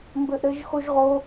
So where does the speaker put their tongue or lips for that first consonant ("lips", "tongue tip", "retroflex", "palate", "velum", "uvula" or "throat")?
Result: lips